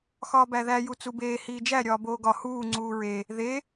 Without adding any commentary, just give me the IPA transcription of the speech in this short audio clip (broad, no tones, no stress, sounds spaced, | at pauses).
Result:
x ɒː b æ ð æ j u t͡s u b eː h iː d͡ʒ æ ɾʲ ɒː b oː ɡ ɒ h uː ŋ͡ǀ uː ɹ e | ð e